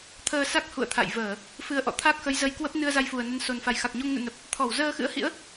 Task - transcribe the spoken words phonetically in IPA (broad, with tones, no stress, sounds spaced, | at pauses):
t̪ʰ əː˧ s a˦˥ k̚ h ṵ˧˨ ə̯ t̪ʰ a̰˧˨ j v əː˧˩˨ | f ɨ˨˦ ə̯ ʔ ɔ̰˧˨ t̪ʰ a˦˥ k̚ x ə˨˦ j z ə˧ j k w ə˦˥ p̚ n ɨ˧ ə̯ z a˧ j f u˨˩ ə̯ n ə˨˦ n s o˨˩ n f a˨˩ j x a˨˩ k̚ ɲ o˧ ŋ n ṵ˧˨ n ə˨˩ p̚ | t̪ʰ ɔ˧˩ w z əː˧ x ɨ̰˧˥ ə̯ h ḭ˧˥ ə̯